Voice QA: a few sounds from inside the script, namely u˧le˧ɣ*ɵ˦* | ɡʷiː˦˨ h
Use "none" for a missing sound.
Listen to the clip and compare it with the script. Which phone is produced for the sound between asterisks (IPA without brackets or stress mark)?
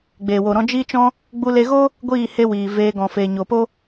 o˦